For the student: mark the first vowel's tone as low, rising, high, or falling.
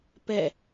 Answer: falling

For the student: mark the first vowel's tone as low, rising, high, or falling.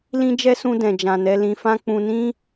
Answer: high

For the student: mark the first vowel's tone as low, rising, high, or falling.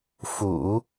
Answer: low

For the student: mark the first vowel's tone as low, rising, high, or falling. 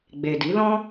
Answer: low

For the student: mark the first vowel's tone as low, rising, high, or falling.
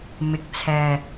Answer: low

